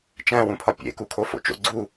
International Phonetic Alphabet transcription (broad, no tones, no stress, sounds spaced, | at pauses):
t͡ʃ æ̃ w ũ pʰ ɒ pʲ ḛ k u kʰ o f o̰ t͡ʃ o̰ ɡ͡ǀ u